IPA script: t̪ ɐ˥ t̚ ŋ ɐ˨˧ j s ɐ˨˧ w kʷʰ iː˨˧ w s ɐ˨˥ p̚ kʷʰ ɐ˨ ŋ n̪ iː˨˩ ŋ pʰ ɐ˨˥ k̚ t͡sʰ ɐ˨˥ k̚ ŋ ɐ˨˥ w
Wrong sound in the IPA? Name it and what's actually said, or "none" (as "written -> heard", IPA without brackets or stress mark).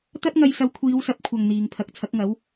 none